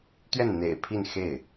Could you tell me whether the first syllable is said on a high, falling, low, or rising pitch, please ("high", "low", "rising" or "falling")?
falling